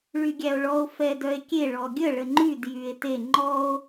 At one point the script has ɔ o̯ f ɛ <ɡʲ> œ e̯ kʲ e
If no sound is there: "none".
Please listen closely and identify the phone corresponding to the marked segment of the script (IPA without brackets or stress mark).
d